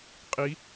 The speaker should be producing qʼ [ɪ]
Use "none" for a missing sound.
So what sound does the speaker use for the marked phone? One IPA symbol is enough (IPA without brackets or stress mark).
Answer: i